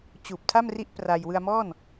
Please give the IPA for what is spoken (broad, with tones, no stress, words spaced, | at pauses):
t͡ɕuː˨˩p̚tʰa˥˩mri˦˥ʔ pra˧j wɯ˧a̯mɔː˥˩n